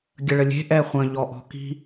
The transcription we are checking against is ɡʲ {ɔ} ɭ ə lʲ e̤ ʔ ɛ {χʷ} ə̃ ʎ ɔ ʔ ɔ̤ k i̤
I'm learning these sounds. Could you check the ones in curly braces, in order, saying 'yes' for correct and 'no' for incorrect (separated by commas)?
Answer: no, yes